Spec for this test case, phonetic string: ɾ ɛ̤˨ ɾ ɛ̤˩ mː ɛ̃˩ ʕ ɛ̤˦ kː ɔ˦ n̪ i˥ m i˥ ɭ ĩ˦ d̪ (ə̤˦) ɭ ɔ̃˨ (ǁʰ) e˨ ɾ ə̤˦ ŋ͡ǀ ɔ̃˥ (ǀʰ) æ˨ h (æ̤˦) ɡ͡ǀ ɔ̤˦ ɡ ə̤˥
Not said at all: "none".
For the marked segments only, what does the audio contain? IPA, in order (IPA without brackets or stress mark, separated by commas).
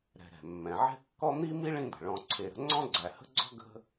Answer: ə̤˩, ǀʰ, ɡ͡ǀ, ə̤˦